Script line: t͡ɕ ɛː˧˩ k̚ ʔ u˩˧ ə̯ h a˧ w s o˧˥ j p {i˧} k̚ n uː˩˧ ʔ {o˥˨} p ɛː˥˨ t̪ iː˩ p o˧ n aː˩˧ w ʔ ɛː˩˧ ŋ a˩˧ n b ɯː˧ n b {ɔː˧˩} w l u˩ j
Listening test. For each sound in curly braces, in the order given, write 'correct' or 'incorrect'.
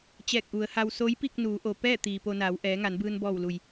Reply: incorrect, incorrect, correct

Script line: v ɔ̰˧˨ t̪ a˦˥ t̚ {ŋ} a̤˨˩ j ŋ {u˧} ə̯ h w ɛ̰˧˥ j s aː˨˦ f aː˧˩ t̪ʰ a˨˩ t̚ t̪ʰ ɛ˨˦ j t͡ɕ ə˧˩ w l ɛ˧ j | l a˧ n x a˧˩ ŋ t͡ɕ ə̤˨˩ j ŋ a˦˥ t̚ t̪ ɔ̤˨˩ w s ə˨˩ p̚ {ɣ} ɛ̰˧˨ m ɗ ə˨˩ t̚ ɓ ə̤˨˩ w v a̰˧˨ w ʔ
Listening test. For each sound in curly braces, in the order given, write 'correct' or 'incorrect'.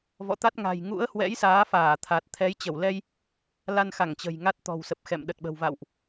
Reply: correct, incorrect, incorrect

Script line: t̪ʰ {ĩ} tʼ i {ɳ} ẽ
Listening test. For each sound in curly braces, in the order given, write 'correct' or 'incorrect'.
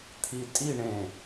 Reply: incorrect, correct

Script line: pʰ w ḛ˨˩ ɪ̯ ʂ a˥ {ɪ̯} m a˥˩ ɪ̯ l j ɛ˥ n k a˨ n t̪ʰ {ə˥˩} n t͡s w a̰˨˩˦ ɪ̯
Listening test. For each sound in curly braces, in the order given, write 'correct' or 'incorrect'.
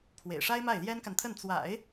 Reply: correct, correct

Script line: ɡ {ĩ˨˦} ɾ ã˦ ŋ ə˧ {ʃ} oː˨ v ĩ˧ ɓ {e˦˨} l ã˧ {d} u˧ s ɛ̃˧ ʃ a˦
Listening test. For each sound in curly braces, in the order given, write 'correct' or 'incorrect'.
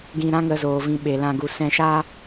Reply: incorrect, incorrect, incorrect, incorrect

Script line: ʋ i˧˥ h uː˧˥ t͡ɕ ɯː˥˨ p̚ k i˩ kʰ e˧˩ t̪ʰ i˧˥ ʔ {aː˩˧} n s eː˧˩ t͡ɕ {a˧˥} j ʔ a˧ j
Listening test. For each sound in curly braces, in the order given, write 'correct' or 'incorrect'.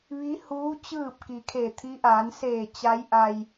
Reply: correct, correct

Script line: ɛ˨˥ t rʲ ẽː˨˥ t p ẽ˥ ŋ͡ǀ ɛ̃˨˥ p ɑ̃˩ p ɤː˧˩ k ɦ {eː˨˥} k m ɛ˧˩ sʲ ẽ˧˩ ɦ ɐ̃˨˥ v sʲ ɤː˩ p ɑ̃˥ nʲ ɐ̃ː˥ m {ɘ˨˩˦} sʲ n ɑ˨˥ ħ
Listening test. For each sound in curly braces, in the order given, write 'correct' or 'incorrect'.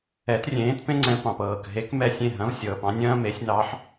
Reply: incorrect, incorrect

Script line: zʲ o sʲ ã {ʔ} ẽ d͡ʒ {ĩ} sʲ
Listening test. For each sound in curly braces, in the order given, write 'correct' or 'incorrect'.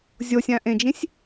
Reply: correct, correct

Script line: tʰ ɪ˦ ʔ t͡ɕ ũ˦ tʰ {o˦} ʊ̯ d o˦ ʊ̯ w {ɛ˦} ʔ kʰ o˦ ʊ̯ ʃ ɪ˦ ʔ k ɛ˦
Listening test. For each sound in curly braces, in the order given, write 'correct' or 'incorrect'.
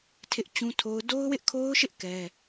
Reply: correct, incorrect

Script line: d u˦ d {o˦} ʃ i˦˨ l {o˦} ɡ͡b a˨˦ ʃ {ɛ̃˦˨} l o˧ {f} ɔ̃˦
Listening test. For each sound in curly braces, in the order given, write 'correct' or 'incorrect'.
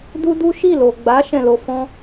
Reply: incorrect, incorrect, correct, correct

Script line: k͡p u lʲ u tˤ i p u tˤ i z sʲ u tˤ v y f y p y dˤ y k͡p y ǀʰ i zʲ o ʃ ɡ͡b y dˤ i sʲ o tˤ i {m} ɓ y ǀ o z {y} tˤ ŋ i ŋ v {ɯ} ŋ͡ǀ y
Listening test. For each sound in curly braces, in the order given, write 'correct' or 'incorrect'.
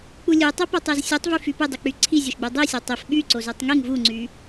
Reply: incorrect, correct, incorrect

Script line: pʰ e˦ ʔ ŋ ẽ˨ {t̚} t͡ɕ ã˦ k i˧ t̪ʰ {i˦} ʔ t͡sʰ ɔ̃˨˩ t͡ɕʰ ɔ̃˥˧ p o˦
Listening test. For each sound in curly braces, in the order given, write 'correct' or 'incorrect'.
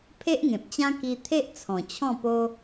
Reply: incorrect, incorrect

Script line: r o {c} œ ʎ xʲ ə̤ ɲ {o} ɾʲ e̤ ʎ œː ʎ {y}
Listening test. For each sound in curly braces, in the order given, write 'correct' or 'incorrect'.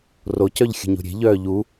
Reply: correct, incorrect, incorrect

